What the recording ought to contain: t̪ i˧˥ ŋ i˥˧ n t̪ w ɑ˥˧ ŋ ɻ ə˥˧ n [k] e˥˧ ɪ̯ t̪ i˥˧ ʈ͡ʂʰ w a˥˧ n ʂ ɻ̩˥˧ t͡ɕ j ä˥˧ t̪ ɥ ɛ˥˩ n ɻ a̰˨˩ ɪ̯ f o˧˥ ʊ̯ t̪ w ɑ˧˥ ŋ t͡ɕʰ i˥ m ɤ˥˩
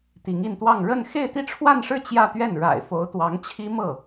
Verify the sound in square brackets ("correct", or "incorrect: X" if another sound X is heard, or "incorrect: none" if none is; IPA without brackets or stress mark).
incorrect: x